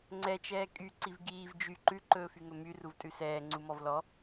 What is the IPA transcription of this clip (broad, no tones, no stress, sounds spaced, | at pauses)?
ŋ͡ǀ ɛ t͡ʃ ɛː kʼ y ǀ i v ɡ iː v d͡ʒ y ǃ ʉ ǃ ɵː f y ŋ ɵ m y r u v tʼ ʉ s ɛː ŋ͡ǀ u m ɔ v l ɔ